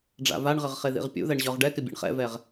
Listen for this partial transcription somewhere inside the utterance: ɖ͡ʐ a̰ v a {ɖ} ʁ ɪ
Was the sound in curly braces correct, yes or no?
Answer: no